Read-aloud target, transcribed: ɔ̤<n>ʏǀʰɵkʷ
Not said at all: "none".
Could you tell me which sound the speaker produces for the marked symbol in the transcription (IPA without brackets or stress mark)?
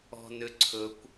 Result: n